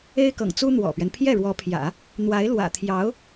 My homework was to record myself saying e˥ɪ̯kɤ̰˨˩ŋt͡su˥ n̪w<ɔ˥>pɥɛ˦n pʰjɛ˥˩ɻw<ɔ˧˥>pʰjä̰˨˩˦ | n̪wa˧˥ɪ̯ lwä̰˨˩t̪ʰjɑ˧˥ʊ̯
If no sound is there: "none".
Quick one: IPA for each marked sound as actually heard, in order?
ɔ̰˨˩, ɔ˧˥

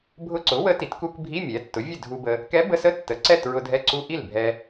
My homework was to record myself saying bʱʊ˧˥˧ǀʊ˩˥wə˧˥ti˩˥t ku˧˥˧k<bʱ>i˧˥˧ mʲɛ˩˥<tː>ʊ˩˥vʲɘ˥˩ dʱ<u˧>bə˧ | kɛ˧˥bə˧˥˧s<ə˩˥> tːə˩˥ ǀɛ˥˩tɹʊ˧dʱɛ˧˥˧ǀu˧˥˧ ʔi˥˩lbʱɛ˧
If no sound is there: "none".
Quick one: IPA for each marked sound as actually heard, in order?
bʱ, tː, u˧, ə˧˥˧

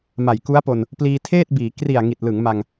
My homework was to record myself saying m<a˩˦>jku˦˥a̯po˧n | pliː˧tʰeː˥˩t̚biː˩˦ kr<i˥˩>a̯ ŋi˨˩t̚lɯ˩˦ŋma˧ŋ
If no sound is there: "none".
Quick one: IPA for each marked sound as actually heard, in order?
a˨˩, i˨˩

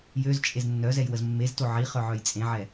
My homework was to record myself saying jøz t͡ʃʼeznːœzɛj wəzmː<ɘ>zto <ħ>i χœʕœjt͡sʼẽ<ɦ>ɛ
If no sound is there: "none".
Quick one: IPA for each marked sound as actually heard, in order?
e, ʕ, ʕ

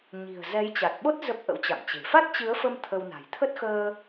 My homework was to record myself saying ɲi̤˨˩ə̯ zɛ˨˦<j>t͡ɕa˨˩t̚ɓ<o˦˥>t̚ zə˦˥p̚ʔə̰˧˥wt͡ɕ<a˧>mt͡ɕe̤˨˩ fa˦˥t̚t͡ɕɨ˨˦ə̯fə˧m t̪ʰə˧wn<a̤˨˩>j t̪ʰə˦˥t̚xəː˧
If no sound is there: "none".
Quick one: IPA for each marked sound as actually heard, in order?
j, o˦˥, a̰˧˨, a̤˨˩

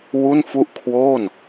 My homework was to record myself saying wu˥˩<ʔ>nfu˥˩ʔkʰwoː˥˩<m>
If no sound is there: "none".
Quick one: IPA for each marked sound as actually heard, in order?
none, n

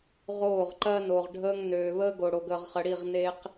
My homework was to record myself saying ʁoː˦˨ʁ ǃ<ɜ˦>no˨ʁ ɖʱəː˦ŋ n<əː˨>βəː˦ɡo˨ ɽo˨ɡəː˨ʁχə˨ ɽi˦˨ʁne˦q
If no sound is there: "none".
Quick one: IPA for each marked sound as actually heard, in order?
ɜ˦, øː˨

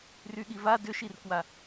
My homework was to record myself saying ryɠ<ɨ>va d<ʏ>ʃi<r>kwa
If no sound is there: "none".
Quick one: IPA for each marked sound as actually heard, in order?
i, ʏ, r

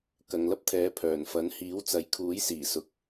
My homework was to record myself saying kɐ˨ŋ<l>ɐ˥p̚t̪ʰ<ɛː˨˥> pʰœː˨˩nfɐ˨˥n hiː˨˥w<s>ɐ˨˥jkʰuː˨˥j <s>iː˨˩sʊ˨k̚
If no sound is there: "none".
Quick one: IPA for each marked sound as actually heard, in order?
l, ɛː˨˥, t͡s, s

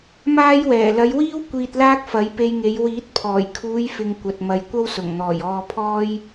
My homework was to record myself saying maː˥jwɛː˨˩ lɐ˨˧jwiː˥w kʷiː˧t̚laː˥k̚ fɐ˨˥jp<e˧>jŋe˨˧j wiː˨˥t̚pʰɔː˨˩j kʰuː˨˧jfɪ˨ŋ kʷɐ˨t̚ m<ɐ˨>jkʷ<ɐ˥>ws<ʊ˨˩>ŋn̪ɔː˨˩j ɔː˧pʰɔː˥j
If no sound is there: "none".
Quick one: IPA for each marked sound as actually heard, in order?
e˧, ɐ˨, ɐ˥, ʊ˨˩

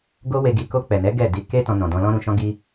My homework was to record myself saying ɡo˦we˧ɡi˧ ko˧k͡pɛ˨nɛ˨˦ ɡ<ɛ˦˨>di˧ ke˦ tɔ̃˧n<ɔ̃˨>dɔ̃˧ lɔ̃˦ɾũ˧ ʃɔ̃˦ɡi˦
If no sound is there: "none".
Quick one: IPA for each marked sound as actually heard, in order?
ɛ˦˨, ɔ̃˨

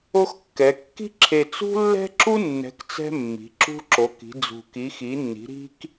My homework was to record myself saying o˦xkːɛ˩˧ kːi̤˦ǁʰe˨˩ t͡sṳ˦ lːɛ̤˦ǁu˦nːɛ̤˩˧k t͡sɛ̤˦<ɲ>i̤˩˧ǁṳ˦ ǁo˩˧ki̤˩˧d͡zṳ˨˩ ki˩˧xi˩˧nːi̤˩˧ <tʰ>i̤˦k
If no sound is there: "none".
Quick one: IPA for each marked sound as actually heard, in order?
mː, ɾ

